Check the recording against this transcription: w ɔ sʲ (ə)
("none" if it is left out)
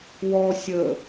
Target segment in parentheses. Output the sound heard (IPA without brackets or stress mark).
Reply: ə